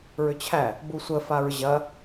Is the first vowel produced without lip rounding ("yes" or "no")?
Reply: no